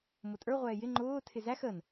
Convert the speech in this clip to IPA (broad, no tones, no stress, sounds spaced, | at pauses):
m ʊ tʼ ə˞ ʁʷ ɛː j ɪ ŋ͡ǃ ʊː tʰ ɪ z æ x ə n